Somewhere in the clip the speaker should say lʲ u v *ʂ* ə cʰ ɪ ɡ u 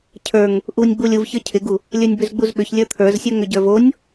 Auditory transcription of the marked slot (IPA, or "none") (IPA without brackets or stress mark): ç